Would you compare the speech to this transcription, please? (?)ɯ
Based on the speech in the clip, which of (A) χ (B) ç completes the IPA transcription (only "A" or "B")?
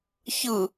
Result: B